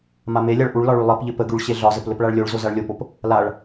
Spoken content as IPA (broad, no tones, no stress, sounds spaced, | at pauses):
m a m e lʲ a ɭ ʔ u ɭ l ɒ ɭ y lˠ ɘ p ʎ ɘ p ə ɡ y ɭ ɕ e ɮ ɒ z ə p l ɘ p ɭ a ɭ lʲ o ɭ z o z a ɭ lʲ o p o p | l a ɭ